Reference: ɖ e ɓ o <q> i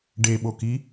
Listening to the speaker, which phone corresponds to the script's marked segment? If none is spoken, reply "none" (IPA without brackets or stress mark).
k